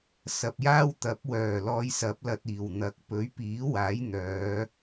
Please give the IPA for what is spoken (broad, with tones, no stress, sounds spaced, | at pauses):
s ɐ˨ p̚ j aː˥ w t̪ ɐ˨˥ p̚ w œː˨˩ l ɔː˧ j s ɐ˨˥ p̚ l ɐ˨ t̚ iː˨˩ w n̪ ɐ˨ k̚ p ɵ˨˥ ɥ p iː˨˥ w aː˨˥ j n̪ œː˨˧